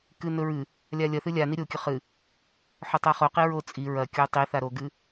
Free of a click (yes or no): yes